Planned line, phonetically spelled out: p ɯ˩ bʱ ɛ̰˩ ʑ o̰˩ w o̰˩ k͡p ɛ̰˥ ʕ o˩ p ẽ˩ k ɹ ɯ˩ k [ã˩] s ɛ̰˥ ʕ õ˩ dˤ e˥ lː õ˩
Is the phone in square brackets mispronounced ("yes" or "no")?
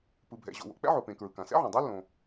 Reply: no